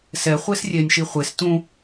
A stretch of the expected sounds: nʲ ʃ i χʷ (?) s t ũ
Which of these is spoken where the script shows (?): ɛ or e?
e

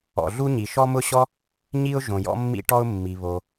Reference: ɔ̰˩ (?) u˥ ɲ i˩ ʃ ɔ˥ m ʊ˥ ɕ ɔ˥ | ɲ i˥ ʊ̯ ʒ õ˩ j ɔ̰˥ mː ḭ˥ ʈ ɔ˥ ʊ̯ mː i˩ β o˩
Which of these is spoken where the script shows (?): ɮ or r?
ɮ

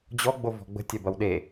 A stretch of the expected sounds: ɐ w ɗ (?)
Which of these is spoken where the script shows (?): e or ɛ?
e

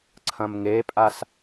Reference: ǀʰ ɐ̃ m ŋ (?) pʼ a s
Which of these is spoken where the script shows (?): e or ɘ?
e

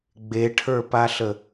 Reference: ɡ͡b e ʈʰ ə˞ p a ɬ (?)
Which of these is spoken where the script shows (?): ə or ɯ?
ə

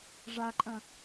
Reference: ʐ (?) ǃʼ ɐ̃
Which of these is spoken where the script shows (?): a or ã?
a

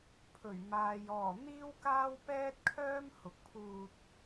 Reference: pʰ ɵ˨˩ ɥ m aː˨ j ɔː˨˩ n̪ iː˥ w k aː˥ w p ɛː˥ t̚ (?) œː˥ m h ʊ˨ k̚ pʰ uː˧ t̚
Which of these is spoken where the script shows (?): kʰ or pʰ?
kʰ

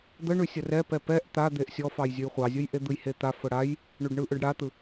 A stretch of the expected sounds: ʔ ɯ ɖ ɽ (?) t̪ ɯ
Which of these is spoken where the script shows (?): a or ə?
a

